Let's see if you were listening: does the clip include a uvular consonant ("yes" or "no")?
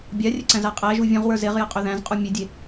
yes